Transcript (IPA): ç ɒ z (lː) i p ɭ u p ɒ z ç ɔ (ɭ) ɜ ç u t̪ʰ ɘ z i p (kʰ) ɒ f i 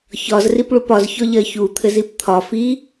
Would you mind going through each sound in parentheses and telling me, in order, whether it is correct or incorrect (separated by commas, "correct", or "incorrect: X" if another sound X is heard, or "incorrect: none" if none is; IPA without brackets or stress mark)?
incorrect: r, incorrect: ʎ, incorrect: t̪ʰ